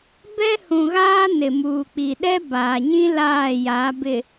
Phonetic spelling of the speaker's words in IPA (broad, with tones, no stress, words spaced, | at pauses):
bɛ˦hũ˨ɣaː˦ nɪ˨muː˨ k͡pi˨ɗɛ˦baː˨ɲĩ˦ laː˦˨ja˨˦bɪ˨